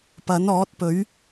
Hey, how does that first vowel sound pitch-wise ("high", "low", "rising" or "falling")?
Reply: rising